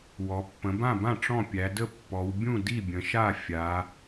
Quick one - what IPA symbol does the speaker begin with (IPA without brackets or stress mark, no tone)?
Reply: w